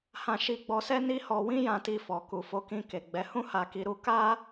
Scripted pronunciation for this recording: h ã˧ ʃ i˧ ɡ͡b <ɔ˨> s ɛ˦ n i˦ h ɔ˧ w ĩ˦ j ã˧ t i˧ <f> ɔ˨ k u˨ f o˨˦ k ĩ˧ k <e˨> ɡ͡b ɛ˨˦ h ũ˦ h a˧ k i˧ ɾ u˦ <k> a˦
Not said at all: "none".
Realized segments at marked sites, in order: ɔ˧, f, e˨, k

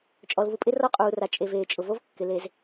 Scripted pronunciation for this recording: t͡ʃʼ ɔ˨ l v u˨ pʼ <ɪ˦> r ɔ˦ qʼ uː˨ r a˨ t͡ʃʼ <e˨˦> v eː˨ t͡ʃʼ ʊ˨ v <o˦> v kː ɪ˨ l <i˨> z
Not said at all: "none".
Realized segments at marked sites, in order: ɪ˦, e˨, o˦, e˨

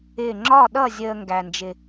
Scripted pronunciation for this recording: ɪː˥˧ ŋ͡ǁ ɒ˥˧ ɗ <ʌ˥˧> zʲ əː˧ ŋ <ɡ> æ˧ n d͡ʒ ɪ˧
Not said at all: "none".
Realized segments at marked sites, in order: ʌ˥˧, ɡ

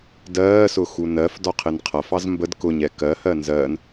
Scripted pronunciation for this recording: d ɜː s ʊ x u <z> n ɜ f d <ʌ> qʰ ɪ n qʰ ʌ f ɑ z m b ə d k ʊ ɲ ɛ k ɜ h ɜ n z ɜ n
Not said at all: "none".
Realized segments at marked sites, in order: none, ɒ

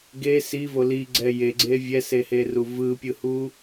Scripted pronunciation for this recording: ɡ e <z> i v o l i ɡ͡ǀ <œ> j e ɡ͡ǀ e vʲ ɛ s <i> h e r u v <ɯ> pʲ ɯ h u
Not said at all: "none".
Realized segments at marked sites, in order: s, ɛ, e, ɯ

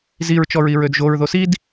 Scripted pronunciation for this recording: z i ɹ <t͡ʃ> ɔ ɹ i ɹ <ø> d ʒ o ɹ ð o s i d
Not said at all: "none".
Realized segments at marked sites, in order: t͡ʃ, ø

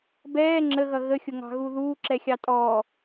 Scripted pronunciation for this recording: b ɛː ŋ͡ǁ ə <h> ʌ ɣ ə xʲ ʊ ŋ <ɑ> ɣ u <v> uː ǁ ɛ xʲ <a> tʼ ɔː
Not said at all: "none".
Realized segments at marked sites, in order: ɣ, ɑ̤, ð, ɑ

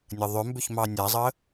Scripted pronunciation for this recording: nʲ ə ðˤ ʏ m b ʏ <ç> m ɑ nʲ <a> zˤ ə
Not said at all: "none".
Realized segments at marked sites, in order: ç, a

